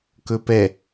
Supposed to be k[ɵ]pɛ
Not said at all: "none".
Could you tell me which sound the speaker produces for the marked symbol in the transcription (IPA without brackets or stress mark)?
ɵ